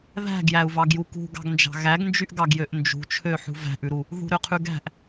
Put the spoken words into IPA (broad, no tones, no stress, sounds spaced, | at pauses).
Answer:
ð æ̤ ɡ j æ u̯ v ɑ ɡ j u k ṳ ɡ ɑ̤ ɡ n d͡ʒ ɑ̤ ɣ æ ɡ n d͡ʒ y ʔ ɡ ɑ ɡ j ø ʔ n d͡ʒ ṳ t͡ʃʰ ø ħ ṳ v æ̤ ʔ ʉ ɾ u | ð ṳ ɾ ø qʰ ʉ ɡ æ̤ ʔ